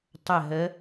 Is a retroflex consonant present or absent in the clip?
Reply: absent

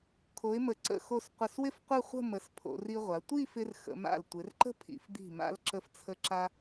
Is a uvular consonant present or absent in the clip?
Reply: present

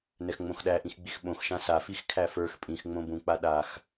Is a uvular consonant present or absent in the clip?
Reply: absent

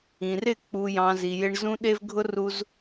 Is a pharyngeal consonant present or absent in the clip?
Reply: absent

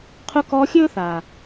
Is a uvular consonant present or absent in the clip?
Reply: present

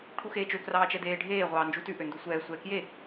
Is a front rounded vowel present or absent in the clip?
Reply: present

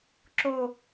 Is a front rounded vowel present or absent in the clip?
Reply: absent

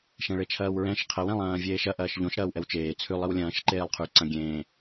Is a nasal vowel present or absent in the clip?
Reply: present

